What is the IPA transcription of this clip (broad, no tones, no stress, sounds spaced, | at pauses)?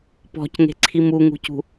p ɔ̤ c ŋ e̤ ǀʰ i m u ŋ ṳ c ṳ